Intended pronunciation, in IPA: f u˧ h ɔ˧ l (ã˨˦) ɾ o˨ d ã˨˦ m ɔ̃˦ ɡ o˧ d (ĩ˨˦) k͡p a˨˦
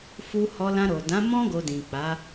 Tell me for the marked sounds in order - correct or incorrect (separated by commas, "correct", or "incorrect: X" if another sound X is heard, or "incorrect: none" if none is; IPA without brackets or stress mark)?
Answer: incorrect: ã˧, incorrect: ĩ˨